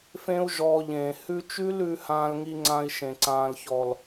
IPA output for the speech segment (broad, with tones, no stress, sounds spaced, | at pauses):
f ẽ˦ u̯ ʒ ɔː˧ ʎ ẽː˨ h ʉ˧ t͡ʃ ʉ˦ l ʉ˧ h ãː˧ l ŋ i˧ ŋ͡ǀ ã˧ i̯ ʃ ẽ˨ ǀ ãː˨ l ç ɔ˨ l